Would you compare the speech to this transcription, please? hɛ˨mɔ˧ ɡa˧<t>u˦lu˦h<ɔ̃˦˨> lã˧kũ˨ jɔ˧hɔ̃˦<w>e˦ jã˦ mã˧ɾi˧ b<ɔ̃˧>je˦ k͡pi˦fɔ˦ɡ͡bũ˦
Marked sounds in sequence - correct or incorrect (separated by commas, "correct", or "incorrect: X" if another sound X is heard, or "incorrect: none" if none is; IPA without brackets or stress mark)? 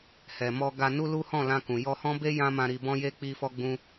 incorrect: n, correct, incorrect: b, incorrect: ɔ̃˦